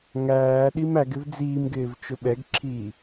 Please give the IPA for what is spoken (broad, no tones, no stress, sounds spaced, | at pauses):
ŋ æː ɗ i m æ ɡ ɪ v d͡z iː m ɡ ɪː v t͡ʃ ʊ ɓ ɛ ɡ ǁʰ iː